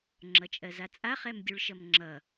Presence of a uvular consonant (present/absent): present